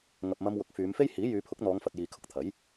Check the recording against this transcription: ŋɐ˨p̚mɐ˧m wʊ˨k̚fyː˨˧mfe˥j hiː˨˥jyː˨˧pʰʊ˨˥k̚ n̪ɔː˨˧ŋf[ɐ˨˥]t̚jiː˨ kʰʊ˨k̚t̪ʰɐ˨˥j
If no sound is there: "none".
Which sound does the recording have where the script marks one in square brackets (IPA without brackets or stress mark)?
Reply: ɐ˨